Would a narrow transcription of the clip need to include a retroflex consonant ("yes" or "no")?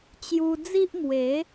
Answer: no